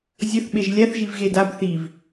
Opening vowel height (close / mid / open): mid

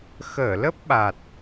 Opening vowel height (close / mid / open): mid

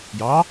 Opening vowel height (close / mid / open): open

